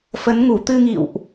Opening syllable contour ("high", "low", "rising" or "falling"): rising